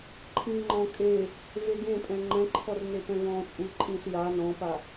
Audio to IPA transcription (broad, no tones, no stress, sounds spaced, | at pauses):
ǃʰ ĩː ŋ͡ǃ ɔ̃ kʼ e | v e ɡ ẽ pʼ ɛ̃ ŋ͡ǃ ɛ̃ ǃʰ ɔ r n e p ɛ̃ v ɔ̃ː t͡sʼ u ǃʼ ĩː ɬ j a n ɔ̃ː p a